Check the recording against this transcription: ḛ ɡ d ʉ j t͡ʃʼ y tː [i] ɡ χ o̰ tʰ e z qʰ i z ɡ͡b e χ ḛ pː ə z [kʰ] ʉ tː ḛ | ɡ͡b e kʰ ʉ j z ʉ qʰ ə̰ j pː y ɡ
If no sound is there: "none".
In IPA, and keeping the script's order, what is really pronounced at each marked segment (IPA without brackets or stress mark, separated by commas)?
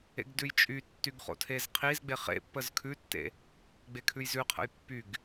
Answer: y, kʰ